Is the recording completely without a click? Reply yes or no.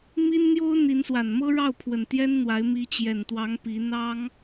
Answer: yes